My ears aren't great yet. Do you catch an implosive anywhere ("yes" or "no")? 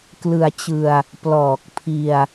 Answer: no